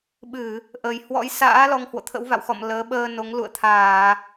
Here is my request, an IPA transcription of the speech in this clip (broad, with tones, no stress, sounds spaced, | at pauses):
ɓ ɨ˧˩˨ | ʔ ə˨˩ j h w ɔ̰˧˥ j s a̰ː˧˥ l ɔ˧ ŋ h w o̰˧˨ t̪ʰ ə̰˧˥ w v a̰˧˨ w x ɔ̰˧˨ m l əː˨˦ ɓ əː˧ n o˨˦ ŋ l ṵ˧˨ ə̯ t̪ʰ aː˧˩˨